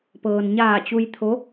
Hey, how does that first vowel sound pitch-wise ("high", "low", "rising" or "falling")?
low